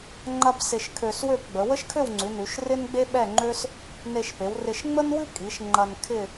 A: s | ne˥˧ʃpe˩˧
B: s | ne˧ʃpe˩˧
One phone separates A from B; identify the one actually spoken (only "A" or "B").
B